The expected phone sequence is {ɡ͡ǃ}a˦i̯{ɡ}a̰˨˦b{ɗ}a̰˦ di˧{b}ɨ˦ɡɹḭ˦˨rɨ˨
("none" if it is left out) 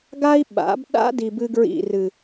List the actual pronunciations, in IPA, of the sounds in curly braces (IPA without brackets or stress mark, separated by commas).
ɡ, ɓ, ɗ, b